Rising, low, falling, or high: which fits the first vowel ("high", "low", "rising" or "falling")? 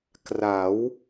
rising